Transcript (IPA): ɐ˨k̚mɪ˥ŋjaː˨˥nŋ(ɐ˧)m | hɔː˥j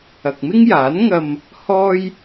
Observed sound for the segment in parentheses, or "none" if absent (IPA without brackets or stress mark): ɐ˧